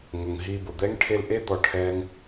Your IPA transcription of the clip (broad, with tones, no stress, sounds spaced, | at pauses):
ŋ ʊ˨ ŋ ɦ i˧ b ʊ˨ d̪ ɛ˦ ŋ ʈʰ e˧ l ʔ e˦ d̪ ɔ˧ ʈʰ ɛ˦ ŋ